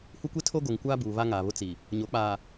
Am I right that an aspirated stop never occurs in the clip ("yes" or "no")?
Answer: no